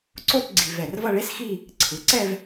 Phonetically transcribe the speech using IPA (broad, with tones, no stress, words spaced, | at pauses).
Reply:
ǀo˥˧t ɡ͡ǀi˧vɛ˧˩r vʌ˥˧ɭe˥sxi˥˧ | ǀʰɯ˩˧ǀɛ˥˧v